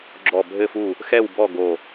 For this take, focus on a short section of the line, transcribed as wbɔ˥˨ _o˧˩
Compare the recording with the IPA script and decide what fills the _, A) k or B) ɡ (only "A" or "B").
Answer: B